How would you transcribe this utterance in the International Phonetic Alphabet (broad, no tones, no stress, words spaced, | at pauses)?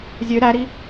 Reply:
zʲø ɾæɾi